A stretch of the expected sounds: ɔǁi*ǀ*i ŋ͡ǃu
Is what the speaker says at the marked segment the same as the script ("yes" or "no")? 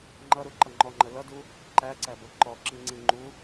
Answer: no